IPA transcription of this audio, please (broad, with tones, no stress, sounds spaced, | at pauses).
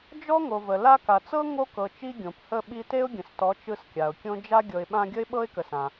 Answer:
d͡ʒ ɔ˦ ŋ o˨ v ə˨ l a˧ k a˨ t͡s ɤ˦ ŋ o˦ k ɤ˨ t͡ʃ i˦ ɡʲ õ˨ p h ə˦˨ ɓ i˧ t e˦ ʊ̯ ɡʲ ə̃˨ s t ɔ˨˦ t͡ʃ ɯ˧ s kʲ a˨ ʊ̯ kʲ õ˦ d͡ʒ a˦ ɡʲ ɤ˧ ɪ̯ ɓ ã˧ ɡʲ ə˦ ɪ̯ ɓ ɤ˦ ɪ̯ k ə˨ s ã˨